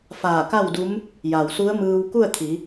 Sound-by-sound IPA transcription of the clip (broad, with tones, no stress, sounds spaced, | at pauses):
f aː˧˩ k a˥˨ w d u˧˥ m | j a˩ w s u˧˥ ə̯ m ɯː˧ w k u˥˨ ə̯ t̪ʰ i˩˧